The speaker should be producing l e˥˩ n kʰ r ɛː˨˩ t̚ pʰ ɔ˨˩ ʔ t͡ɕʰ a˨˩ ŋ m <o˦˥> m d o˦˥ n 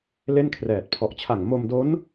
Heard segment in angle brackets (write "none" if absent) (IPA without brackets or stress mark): o˧